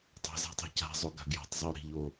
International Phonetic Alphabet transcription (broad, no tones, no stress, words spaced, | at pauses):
tˤa̤za̤tˤe̤ ca̤zˤoɡa̤ ɡja̤tˤzˤɪo̯ ɾi̤ʎo